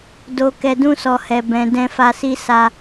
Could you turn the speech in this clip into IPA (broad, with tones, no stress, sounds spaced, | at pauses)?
d o˨ k ɛ˨ d ũ˧ s ɔ˨ h ɛ˨ b ɛ̃˨ d ɛ̃˧ f a˧ s i˦ s a˧